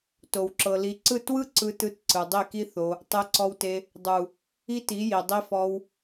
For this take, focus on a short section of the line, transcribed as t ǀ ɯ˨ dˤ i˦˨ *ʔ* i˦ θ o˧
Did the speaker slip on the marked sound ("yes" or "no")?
yes